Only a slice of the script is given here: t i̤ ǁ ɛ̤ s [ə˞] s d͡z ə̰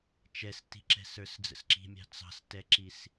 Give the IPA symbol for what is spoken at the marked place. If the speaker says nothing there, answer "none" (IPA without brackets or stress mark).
ə˞